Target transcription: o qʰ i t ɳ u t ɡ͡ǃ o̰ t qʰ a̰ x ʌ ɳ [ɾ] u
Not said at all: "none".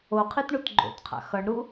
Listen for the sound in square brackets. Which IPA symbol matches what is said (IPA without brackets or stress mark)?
ɾ